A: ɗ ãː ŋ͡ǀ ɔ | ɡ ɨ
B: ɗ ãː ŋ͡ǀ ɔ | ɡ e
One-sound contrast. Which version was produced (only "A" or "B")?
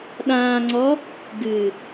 A